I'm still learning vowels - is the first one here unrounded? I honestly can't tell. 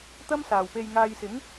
yes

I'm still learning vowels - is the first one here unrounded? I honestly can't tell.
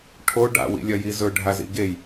no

